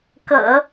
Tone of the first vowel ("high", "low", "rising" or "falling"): low